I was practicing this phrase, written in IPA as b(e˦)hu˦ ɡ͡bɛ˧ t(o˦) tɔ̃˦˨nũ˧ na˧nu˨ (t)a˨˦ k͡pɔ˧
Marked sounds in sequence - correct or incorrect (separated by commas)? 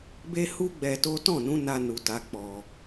correct, correct, correct